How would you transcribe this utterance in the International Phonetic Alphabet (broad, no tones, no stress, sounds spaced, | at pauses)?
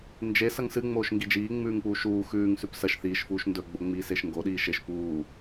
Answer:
n d͡ʒ e s ɐ ŋ s ɨ ŋ͡m oː ʃ ŋ ɡ i d͡ʒ iː ŋ͡m ʉː ŋ p uː ʃ uː x ʉː ŋ s ʉ p s ɐ ʃ θ iː ʃ f uː ʃ n d ɵ ɡ͡b o ŋ͡m iː s e ʃ ŋ ɡ o ɗ iː ʃ e ʃ p uː